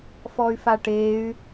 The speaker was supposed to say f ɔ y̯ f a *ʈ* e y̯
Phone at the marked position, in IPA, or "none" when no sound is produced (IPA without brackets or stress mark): ʈ